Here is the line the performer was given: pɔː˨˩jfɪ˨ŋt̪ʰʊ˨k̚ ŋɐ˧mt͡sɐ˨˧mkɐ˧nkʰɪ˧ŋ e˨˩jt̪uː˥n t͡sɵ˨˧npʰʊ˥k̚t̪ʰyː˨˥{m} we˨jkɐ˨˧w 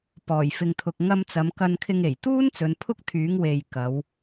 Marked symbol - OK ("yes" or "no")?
no